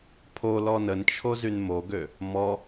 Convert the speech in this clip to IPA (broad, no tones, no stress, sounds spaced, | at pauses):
pʰ o l ɔ n ə n t͡ʃʰ o z y n m o ɡ ø | m ɔ